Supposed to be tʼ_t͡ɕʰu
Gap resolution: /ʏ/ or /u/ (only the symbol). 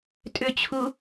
ʏ